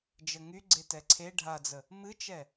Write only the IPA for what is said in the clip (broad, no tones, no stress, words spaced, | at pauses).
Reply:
d͡ʒəŋy ɡ͡ǀetɛǀʰe ɖʱad͡zə | mɨt͡ʃɛ